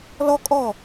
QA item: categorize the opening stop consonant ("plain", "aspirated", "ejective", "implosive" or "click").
ejective